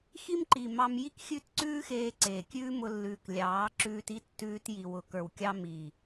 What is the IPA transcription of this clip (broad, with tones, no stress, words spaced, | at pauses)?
xi˦mǃi˨ mɑ˧m ji˦kxʲʉ˦˨t ǀʉː˦xeː˧ǀeː˨ kʲʉː˦mʊ˧lːʉː˨k lʲɑː˨˦ǁʉː˧ti˦ tːʉː˧t ji˨wʊ˨kə˞˨wkʲɑ˧ mi˨